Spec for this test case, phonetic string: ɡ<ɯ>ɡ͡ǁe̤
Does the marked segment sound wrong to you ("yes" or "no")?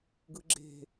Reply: no